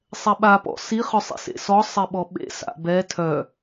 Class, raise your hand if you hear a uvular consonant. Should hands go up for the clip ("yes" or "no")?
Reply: yes